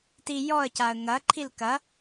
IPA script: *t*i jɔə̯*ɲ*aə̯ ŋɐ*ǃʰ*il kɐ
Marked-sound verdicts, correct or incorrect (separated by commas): correct, incorrect, correct